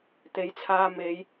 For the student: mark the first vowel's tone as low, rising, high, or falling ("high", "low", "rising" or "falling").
rising